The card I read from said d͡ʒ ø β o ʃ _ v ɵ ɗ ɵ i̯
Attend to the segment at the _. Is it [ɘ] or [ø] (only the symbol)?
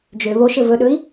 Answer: ɘ